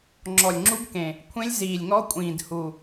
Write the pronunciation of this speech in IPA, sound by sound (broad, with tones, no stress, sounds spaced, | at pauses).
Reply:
ŋ͡ǁ ɔ˨˩ lʲ ŋ͡ǁ u˦˥ ɡ k ẽ˨˩ | kʷʰ ẽ˦˥ lʲ z iː˨˩ lʲ ŋ ɔ˦˥ kʷʼ ĩː˨˩ d h u˨˩